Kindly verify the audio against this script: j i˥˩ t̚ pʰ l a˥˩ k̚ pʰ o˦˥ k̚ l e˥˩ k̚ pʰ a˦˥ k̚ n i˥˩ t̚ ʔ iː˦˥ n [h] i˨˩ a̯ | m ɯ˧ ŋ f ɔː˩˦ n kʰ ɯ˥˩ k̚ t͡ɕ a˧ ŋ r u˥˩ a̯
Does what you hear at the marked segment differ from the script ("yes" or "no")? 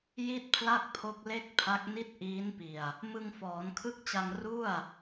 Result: yes